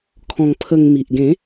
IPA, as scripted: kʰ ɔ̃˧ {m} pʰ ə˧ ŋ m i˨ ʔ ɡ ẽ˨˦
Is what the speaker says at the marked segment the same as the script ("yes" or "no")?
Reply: no